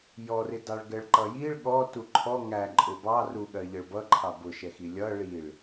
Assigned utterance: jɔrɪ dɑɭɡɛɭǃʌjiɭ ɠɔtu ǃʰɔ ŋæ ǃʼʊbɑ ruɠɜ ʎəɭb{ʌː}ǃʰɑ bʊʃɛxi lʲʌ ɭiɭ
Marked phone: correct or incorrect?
incorrect: ʌ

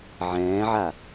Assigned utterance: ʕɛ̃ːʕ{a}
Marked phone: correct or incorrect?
correct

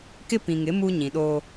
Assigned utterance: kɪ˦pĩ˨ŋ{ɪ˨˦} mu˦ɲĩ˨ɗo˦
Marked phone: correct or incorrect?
correct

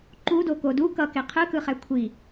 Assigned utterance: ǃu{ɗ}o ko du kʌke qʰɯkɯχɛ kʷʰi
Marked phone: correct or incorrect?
incorrect: d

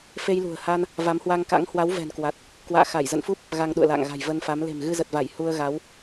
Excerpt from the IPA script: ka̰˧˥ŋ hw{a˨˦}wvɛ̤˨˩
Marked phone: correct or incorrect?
correct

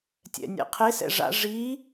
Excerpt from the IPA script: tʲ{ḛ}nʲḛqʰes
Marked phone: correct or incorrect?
incorrect: ɛ̰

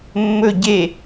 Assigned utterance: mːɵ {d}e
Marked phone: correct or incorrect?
incorrect: ɟ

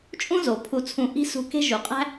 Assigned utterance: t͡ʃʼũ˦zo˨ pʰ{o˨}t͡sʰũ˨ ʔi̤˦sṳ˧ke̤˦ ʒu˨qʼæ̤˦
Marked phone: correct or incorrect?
incorrect: u˨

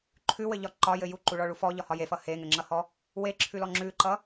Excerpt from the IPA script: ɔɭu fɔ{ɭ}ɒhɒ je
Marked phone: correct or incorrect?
incorrect: ʎ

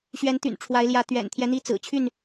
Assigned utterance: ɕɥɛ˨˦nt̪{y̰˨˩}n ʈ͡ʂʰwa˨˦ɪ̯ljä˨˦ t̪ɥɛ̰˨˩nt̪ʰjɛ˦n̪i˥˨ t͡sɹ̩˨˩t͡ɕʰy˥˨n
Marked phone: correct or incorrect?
correct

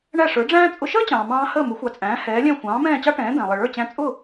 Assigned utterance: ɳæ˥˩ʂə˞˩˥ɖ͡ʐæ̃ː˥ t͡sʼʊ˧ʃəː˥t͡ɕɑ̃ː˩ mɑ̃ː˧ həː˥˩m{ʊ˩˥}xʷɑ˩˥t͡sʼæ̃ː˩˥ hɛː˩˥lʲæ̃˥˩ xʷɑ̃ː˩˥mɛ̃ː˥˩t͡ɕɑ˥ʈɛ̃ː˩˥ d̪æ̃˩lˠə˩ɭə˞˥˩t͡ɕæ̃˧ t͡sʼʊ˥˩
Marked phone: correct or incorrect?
correct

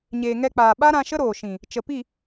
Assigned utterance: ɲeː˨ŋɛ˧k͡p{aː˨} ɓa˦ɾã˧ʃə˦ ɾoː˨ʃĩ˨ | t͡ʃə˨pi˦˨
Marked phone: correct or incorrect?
correct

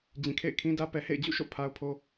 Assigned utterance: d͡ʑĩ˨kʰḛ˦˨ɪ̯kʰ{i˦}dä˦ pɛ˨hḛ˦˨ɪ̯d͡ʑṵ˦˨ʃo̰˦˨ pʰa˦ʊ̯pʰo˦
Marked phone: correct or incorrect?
incorrect: ĩ˦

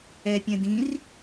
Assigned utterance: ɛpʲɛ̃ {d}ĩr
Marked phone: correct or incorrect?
correct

